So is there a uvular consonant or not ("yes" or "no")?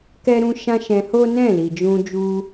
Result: no